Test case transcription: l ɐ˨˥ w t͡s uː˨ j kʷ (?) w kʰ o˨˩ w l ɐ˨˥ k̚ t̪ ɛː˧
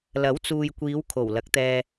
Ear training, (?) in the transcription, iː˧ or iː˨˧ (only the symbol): iː˨˧